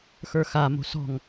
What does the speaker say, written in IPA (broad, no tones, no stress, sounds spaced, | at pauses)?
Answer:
x ə˞ x a m o̤ s ɔ̤ ŋ